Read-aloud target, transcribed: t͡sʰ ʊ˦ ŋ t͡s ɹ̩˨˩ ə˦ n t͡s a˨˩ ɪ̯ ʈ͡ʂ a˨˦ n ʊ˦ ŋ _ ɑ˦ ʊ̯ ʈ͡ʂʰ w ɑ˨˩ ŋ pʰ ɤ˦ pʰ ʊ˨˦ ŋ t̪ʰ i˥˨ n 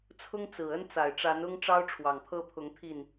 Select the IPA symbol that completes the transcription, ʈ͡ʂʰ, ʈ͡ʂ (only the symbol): ʈ͡ʂ